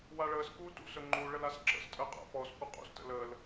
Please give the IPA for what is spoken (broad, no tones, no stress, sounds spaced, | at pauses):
w a ɭ əː s k uː t ṵ s ɵ ŋ͡ǃ u ɭ ə l a s ǁ ə̰ s tʼ əː qʼ a̰ p ɔ s kʷ ɨ qʼ ṵ s t ə̰ l əː l